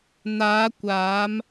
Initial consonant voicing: voiced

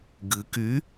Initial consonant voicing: voiced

